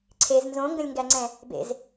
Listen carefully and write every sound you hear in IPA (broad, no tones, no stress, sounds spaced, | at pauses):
ǀʰ e z n z õ ŋ ɡ ə̃ lʲ ŋ ɡ æ ŋ͡ǀ ɛ̃ | b ḛ z